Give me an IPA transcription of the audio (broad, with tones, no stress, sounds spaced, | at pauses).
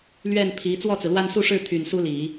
l ɥ ɛ˥˩ n pʰ i˧˥ t͡s w ɔ˥˩ t͡s ɹ̩˩ l w a˥˧ n s u˥˧ ʂ ɻ̩˥˩ t̪ʰ y˨˩ n s u˥ l i˨˩˦